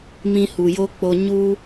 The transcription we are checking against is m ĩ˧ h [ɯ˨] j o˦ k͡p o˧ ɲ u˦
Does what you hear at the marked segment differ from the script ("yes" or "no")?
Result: yes